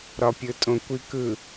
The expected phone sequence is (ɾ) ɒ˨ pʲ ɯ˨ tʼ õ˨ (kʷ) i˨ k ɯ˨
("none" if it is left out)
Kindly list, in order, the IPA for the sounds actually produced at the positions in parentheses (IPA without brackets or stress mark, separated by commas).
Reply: ɾ, kʷ